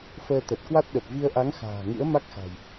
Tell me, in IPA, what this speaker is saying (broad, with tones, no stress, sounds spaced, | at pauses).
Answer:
f əː˧ t̪ ə˨˩ t̚ k w a˦˥ t̚ ɗ ə˨˩ p̚ v i˧ ə̯ ʔ a˨˦ ŋ x a̤ː˨˩ ŋ ɨ̰˧˥ ə̯ m a˦˥ k̚ x a̤˨˩ j